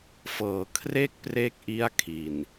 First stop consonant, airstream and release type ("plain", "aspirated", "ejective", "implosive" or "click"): aspirated